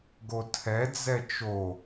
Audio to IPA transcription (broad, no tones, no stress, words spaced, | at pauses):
ɡotʰɛd͡zɛ t͡ʃo